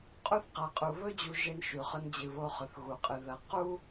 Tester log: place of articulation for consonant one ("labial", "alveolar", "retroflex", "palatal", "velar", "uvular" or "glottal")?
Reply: uvular